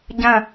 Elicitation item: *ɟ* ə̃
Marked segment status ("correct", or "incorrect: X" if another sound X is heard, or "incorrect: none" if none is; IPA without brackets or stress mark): correct